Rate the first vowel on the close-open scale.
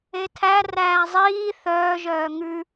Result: mid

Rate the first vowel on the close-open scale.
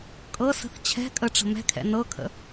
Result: mid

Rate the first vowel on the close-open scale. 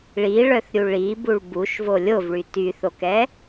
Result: close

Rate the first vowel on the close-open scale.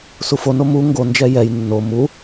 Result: close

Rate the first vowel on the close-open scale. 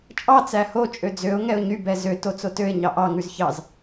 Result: open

